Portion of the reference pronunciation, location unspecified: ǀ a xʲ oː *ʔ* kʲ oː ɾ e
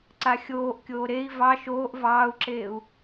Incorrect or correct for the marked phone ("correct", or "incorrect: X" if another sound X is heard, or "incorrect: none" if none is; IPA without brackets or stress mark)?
correct